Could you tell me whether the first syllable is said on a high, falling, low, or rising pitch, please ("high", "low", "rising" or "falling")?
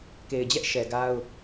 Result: low